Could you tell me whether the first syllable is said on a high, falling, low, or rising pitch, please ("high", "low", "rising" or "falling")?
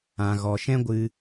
low